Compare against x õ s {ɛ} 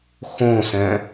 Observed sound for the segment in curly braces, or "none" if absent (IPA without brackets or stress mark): ɛ̃